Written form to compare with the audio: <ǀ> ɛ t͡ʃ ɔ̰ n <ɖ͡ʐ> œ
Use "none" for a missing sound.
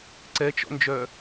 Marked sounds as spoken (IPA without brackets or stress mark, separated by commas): ǀ, d͡ʒ